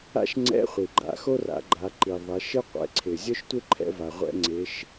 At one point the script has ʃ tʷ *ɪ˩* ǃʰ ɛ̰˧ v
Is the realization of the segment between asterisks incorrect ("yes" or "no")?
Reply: yes